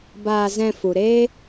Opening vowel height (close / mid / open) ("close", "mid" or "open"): open